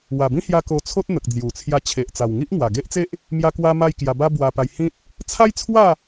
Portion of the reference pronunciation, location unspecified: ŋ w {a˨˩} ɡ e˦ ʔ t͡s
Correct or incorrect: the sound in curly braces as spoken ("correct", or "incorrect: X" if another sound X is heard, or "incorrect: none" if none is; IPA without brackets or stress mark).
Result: correct